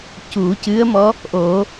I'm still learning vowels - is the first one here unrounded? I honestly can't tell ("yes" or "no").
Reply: no